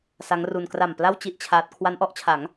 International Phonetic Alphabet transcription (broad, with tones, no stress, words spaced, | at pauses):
sa˦˥ŋru˧n kra˨˩m pla˥˩w t͡ɕi˥˩ʔt͡ɕʰaː˦˥t̚ kʰwa˦˥nʔɔ˦˥ʔt͡ɕʰa˩˦ŋ